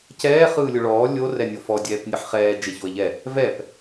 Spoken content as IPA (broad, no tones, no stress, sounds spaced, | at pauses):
c ɛː χ ɯː lʲ o ɭ ɔː lʲ o r ɛ nʲ o f ɔ dʲ ɛː p nʲ ɛ ħ χ ɛː d͡ʒ e ç o e̯ ʎ ɛ | v ɛ p